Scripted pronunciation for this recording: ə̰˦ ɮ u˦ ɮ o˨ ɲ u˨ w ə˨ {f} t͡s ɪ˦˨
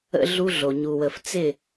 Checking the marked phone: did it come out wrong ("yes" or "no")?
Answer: no